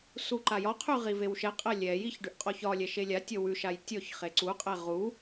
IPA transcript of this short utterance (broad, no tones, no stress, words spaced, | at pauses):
suǃajɒqʰʉ ʁivewʃɛqʼɛ lʲɛjiç ɖʉʔqʼɔçɒlʲɛ ʃelʲatʲɔ wʉʃaj tʲɔç χeǀuqʼɛ ʁu